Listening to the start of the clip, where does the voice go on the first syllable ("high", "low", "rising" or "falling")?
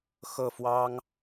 falling